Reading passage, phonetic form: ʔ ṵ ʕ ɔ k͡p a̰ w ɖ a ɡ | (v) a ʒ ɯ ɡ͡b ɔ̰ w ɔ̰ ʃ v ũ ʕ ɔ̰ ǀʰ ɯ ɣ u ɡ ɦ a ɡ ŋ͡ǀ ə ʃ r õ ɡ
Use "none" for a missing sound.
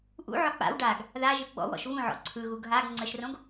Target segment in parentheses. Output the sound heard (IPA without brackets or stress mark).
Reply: ð